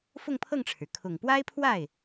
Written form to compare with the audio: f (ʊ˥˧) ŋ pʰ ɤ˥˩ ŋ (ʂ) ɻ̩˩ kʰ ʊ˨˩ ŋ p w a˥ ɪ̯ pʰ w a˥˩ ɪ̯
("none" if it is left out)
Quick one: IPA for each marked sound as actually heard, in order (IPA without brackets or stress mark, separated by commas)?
ʊ˥˧, ʈ͡ʂʰ